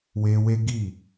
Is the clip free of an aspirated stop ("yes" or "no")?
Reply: yes